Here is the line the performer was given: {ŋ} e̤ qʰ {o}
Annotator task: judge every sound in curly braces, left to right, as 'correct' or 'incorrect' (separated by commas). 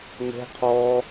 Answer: correct, incorrect